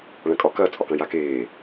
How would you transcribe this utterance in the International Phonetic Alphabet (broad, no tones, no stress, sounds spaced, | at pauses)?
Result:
ɭ ɐ̃ kʼ ɒ k ɐ t͡sʼ ɒ k ɐ̃ j a k eː